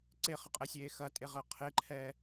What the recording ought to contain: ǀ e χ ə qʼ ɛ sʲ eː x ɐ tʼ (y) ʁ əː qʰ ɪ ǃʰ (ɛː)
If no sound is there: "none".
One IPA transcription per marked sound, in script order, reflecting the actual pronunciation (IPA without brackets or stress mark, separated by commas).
e, ɛː